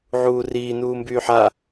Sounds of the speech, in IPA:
ʕ uː r iː n uː m b yː ħ a

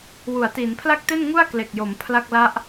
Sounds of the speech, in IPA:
w u˩˦ a̯ t iː˩˦ n pʰ l a˥˩ k̚ t e˥˩ n ŋ u˥˩ a̯ k l e˨˩ k̚ j o˩˦ m pʰ l a˥˩ k̚ l a˥˩ ʔ

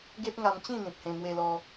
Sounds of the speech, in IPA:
ɡ e˦ p̚ ŋ a˧ m t͡ɕ ĩ˥˧ n̪ ĩ˨ p̚ h ẽ˧ m w e˧ l ɔ˧

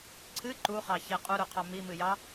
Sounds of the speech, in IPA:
ǀʰ ɨ ǃ u χ ɑ ç e qʼ u ɾ u qʰ ɑ m i m ɨ j ɑ

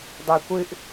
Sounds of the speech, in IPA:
dˤ ø kʷ ɨ ʔ

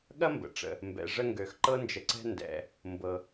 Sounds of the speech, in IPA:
ɠ ɐ˥ m b ə̰˩ ʈ͡ʂ ə̰˩ | m b ɛ̰˩ ʐ ə˦ ŋ ɡ ø˩ x ǃ ɤ˦ n d͡ʒ ə˨ ǀ ɛ̤˦ n d ɛ̰˨ | m b ɤ˩

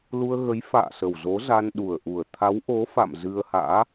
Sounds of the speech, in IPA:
l u˧ ə̯ ɣ ə˨˦ j f a̰ː˧˨ s ə˨˩ w z o˨˦ z a˧ n ɗ u˨˩ ə̯ ʔ u˨˩ ə̯ t̪ʰ a˨˦ w ʔ o˨˦ f a̰˧˨ m z ɨ˧ ə̯ h a̰ː˧˥

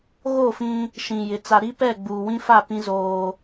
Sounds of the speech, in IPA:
ɣ o˦˨ f ĩ˦ | ʃ ĩ˨ j ɪ˨ t͡s a˨ ɾ i˦ p ɛ˦˨ ɡ͡b uː˨ w ĩ˦ f a˦˨ p ĩ˦ z oː˦

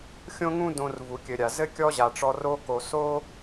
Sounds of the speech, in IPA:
xʲ õ˦ ŋ ũ˦ d õ˧ r v u˨ kʲ ɘ˨ ɾʲ a˨ z ɘ˦ kʲ ɔ˦ ʑ a˨ ʈ͡ʂ ɔ˧ r o˧ k o˨ s o˦

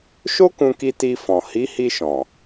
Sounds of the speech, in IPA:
ʃ o˦ k ũ˧ k i˧ t i˧ f ɔ̃˨ h i˨˦ h i˧ ʃ ɔ̃˨

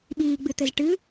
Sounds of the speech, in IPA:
ɓ iː ɡ͡b ɨ t̪ ɘ z ʈ ɨ

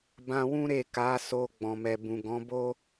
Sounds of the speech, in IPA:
b ã˧ w ũ˦ ɾ e˦˨ k a˨˦ s o˧ ɡ͡b ɔ̃˨ m ɛ˨ b ũ˨ ɡ ɔ̃˨˦ b o˦

